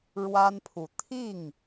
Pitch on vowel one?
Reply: high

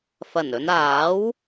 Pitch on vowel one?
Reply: low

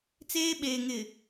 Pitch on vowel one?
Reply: high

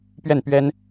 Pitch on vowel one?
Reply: falling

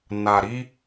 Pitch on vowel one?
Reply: low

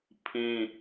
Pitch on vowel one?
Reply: high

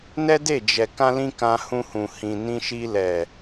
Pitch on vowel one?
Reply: high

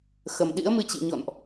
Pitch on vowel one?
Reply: low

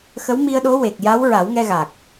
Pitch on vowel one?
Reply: rising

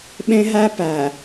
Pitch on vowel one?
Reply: high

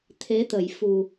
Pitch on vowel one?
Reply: rising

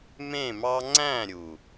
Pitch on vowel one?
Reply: falling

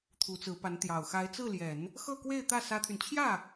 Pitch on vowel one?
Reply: rising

